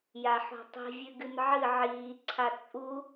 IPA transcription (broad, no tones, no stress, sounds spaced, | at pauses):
j a ħ o̤ tˤ i̤ vʲ ʉ ɡ ɨ n ʕ ɨ ʕ iː ǀʰ a t͡sʼ u